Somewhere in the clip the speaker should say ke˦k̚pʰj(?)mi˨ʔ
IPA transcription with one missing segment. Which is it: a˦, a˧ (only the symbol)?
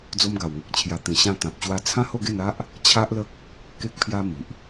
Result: a˦